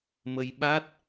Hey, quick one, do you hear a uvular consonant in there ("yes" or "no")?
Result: no